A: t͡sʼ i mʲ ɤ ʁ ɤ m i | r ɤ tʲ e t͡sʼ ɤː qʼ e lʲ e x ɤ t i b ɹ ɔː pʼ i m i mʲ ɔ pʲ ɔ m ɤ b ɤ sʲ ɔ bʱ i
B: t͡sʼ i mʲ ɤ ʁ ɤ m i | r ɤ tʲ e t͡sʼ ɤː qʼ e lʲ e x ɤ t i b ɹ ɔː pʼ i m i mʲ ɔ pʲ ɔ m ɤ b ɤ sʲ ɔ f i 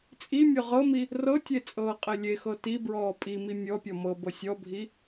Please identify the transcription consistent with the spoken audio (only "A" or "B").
A